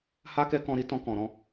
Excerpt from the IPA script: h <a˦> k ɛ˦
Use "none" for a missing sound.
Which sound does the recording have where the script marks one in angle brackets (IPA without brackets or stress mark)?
a˦